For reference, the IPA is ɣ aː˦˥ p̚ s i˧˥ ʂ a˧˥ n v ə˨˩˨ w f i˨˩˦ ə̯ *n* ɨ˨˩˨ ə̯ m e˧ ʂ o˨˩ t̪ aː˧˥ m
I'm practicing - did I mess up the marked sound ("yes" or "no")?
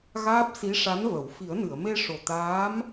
no